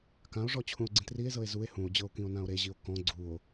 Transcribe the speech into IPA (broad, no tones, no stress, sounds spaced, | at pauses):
k ã o̯ ʐ ɔ t͡ɕʰ ũ o̯ ɡ͡ǀ ĩ t r i e̯ z ɤ e̯ z u e̯ h ũ o̯ d͡ʑ ɤ o̯ k ĩ o̯ n ã o̯ ɾ e ʑ i o̯ k ɔ̃ ɡ͡ǀ u o̯